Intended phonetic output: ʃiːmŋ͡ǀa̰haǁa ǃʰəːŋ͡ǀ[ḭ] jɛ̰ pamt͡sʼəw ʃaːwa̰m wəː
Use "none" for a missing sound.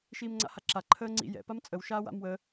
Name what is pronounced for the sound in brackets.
ḭ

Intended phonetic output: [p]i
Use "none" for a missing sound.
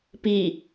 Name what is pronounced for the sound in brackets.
p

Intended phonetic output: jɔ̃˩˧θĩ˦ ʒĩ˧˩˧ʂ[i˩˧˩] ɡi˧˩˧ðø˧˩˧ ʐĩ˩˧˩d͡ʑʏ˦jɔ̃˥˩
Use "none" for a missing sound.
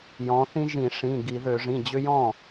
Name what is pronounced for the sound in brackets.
ĩ˩˧˩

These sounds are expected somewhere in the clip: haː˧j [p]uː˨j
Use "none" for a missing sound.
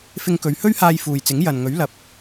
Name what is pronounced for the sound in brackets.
f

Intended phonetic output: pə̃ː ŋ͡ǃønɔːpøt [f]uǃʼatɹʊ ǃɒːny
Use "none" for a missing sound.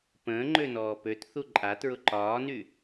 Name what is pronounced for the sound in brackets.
θ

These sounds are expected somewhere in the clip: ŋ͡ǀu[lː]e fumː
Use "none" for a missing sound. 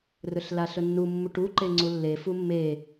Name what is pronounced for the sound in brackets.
lː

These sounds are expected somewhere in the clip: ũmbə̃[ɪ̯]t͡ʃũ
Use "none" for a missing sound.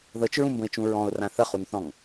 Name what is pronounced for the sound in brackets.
ɪ̯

